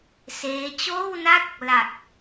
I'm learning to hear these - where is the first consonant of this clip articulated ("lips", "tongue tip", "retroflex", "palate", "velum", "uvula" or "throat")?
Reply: tongue tip